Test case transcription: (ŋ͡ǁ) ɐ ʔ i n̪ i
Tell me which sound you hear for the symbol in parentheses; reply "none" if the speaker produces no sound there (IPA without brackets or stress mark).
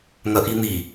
ŋ